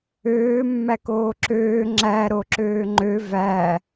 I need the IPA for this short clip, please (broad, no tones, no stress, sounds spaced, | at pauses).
øː mː æ k oː ǁ øː ŋ͡ǁ æ ɾ o ǁ øː ŋ͡ǃ ø v æ